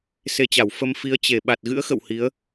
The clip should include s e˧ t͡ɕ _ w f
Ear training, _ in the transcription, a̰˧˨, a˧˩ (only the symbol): a˧˩